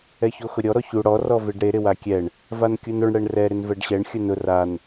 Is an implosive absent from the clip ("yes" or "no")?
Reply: yes